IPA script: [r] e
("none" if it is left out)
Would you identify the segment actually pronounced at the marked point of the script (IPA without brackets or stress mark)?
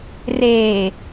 r